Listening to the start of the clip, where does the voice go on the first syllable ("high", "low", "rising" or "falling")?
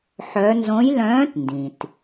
rising